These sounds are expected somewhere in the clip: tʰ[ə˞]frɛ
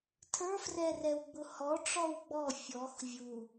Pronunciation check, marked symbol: correct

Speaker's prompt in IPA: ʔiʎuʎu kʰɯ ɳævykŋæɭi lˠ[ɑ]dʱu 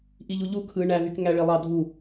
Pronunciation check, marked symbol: correct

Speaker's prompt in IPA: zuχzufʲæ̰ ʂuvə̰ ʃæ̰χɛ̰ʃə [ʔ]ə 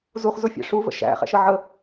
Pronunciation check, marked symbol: incorrect: ʕ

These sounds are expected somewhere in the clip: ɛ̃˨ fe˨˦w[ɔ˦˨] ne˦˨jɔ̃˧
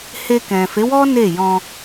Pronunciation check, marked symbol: incorrect: ɔ˦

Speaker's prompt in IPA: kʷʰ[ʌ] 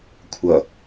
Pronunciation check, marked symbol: correct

